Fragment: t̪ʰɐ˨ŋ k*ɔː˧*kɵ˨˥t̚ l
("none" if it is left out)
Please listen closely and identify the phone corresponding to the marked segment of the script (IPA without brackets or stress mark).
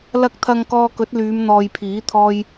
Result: ɔː˧